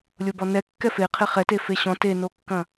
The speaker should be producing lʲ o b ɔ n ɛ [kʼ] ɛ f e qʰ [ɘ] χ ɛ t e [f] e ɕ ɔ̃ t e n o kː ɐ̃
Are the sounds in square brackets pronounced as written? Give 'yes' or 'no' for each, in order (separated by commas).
no, no, yes